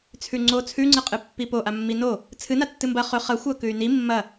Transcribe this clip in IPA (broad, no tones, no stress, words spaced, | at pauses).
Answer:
t͡sʰʉŋ͡ǀo t͡sʰʉŋ͡ǀɨ qʼɨpːipo ʔamːino | t͡sʰɨna tːɨmbɐ χɵ χɐxʷɐ kʉy̯ni mːɐ